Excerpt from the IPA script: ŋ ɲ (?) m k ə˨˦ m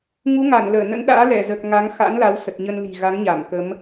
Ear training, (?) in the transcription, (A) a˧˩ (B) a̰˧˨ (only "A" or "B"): A